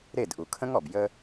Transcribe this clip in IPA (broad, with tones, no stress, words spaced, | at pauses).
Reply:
ɾe˦˨dʔu˨kʰə̃˦ŋɔ˨b jə˧